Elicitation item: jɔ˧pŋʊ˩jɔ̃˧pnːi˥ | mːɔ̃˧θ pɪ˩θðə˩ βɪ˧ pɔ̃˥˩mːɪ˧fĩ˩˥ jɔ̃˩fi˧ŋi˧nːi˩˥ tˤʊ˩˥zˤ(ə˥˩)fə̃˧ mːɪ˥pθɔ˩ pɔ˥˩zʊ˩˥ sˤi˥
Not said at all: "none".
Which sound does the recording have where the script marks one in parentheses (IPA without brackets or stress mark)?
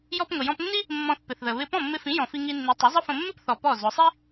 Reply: ə˥